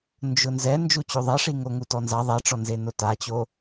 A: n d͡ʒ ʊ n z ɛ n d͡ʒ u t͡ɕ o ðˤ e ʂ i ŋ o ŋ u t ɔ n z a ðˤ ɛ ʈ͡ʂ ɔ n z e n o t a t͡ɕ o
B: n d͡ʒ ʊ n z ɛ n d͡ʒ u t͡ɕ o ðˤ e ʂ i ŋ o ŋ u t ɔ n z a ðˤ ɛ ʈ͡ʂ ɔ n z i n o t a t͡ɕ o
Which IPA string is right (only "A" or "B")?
A